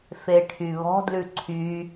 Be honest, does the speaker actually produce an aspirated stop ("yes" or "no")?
yes